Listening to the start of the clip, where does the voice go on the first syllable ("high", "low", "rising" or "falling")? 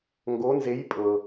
rising